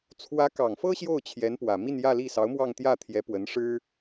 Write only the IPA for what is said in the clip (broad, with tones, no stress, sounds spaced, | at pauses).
t͡sʰ w ä˧˥ k ɑ˨˩ ŋ f ɤ˥ ɕ j o˥˩ ʊ̯ t͡ɕʰ j ɛ˧˥ n p w ä˨˩ m i˥˧ n j ä˥˧ l i˥˩ s ɑ˧˥ ʊ̯ m w ɑ˥˧ ŋ t̪ j ä˥˩ t̪ʰ j ɛ˧˥ p w ə˧˥ n ʂ ɻ̩˥